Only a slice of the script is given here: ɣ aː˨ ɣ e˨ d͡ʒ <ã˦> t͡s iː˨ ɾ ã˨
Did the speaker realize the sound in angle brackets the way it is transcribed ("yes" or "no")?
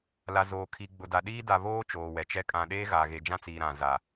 yes